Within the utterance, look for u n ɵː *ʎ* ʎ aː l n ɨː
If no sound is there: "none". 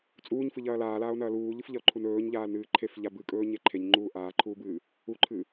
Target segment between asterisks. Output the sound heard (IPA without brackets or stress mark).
ɲ